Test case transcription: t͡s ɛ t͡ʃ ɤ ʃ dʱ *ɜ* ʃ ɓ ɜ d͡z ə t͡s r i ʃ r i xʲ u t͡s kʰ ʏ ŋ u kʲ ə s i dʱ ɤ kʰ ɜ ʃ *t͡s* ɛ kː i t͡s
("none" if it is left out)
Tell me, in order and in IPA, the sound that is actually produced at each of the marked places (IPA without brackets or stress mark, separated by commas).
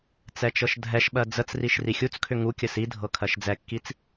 ɛ, d͡z